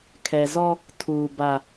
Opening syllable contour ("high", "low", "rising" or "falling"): low